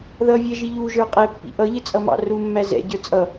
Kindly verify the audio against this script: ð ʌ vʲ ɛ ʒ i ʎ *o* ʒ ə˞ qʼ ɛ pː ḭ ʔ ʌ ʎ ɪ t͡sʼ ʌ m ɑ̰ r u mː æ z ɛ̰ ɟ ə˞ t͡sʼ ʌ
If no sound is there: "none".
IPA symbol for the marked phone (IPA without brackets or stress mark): u